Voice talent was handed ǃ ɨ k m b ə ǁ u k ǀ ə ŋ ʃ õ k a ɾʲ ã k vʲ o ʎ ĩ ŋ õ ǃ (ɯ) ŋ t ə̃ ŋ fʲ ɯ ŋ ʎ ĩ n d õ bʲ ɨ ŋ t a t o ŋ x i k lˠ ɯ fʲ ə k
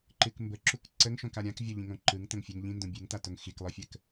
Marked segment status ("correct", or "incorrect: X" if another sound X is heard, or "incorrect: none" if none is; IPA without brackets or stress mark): correct